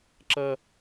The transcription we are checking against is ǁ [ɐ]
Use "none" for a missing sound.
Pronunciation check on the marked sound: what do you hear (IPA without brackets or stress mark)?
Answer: ɐ